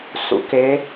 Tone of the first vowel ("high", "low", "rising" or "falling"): rising